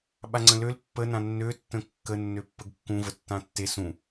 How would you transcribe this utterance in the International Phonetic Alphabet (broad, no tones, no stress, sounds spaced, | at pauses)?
ɓ a ŋ͡ǀ ə̃ l ø l pː ə n ã nː ø tː ə̃ kː ə nː ø pː ə ɡ kː ũ v ə tː ã tː e s ũ